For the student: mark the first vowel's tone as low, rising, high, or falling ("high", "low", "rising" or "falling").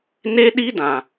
high